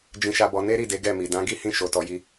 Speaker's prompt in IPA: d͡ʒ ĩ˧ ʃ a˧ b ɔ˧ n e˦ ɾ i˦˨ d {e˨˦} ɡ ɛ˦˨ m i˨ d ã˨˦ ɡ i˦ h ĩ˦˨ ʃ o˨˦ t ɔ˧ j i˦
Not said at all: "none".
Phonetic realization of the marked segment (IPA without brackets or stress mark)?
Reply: e˨˦